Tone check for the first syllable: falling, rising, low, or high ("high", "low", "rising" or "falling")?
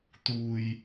low